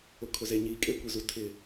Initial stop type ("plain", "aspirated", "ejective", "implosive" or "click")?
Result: aspirated